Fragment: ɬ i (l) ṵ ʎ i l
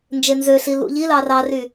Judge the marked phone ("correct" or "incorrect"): correct